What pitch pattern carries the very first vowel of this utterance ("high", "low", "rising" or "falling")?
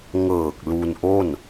low